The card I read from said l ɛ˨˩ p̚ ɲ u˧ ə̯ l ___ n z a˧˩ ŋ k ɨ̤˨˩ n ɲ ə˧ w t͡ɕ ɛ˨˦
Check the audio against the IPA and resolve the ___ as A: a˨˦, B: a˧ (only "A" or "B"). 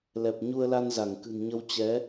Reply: B